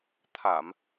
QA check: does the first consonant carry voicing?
no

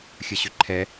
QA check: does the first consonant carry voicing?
no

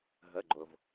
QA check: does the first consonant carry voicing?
yes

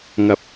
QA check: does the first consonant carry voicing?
yes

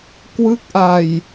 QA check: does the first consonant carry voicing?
no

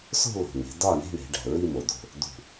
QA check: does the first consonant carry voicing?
no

